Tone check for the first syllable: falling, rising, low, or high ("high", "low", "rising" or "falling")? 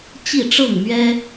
falling